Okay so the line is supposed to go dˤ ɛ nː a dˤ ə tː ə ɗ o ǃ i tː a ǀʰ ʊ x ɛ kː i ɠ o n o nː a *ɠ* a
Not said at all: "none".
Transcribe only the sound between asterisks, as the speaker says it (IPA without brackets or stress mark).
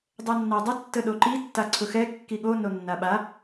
ɓ